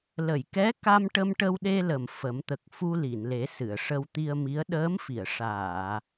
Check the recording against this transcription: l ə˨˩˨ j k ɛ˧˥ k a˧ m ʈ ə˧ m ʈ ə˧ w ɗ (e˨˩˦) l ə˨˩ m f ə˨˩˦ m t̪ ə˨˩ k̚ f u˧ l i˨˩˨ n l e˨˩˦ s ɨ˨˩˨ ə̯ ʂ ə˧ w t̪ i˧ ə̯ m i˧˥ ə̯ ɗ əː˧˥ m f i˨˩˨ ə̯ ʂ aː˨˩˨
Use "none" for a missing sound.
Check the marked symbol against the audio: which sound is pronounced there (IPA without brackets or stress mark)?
e˧